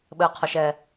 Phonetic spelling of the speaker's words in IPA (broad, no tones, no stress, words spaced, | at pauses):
ɓɘqʰɔʃ ɛ